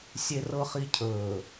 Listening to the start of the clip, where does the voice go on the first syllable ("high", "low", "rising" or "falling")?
low